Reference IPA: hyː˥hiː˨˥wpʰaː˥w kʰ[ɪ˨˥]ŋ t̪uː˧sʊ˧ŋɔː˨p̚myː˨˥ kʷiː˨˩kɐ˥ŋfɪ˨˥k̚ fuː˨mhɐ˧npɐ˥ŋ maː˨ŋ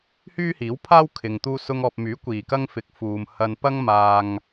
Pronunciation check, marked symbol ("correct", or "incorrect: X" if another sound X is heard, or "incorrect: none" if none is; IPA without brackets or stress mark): incorrect: ɪ˨